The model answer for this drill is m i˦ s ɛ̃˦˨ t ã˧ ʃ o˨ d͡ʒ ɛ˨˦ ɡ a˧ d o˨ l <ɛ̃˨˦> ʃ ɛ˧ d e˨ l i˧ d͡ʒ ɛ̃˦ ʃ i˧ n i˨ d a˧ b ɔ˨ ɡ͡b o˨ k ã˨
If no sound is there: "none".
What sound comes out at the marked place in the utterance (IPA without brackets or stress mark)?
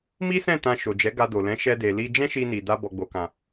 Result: ɛ̃˨˦